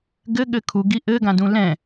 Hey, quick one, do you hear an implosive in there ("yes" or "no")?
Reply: yes